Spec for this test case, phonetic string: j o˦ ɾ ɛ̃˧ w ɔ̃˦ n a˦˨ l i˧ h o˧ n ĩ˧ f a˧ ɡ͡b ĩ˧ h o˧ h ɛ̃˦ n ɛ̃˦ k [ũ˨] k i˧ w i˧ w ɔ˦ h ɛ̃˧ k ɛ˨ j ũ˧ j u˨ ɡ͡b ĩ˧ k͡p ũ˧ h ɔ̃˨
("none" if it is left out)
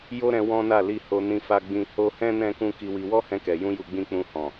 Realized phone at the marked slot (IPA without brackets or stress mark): ũ˦